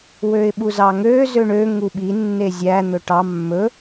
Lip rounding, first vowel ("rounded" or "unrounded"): rounded